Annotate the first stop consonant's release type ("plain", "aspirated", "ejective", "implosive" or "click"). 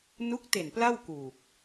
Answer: plain